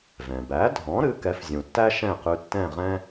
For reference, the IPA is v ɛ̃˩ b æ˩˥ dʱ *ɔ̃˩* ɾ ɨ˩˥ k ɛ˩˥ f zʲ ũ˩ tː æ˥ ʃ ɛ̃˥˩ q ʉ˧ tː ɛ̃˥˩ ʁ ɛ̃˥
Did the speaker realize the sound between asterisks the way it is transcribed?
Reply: no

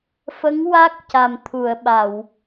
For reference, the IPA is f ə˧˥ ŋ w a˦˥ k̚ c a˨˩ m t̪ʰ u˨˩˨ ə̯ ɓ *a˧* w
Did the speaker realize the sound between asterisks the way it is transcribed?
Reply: no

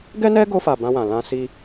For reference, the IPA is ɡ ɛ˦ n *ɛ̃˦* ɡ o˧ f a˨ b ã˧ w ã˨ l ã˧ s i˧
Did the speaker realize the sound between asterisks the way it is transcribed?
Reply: no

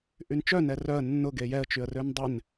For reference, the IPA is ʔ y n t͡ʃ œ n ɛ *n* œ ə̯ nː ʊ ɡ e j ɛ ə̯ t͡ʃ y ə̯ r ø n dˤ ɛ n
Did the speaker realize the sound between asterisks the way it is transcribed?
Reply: no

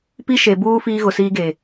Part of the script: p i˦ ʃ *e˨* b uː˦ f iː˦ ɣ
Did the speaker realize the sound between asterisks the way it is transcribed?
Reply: yes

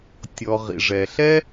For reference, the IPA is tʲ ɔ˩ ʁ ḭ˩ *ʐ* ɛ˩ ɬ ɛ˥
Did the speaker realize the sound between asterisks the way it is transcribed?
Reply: yes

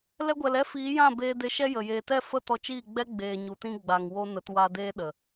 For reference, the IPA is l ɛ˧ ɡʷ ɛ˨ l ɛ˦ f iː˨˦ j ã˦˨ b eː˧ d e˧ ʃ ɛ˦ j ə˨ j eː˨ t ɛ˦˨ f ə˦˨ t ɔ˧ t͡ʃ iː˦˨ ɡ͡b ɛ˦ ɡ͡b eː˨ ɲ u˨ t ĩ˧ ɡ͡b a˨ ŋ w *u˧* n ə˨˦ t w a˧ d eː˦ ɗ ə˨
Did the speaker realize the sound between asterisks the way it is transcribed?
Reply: no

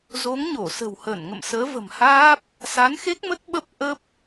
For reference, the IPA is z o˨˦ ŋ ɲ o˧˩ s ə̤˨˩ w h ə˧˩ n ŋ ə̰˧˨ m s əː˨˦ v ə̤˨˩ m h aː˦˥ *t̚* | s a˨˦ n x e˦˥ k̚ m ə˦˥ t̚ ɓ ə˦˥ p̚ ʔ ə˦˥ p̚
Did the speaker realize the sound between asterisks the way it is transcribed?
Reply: no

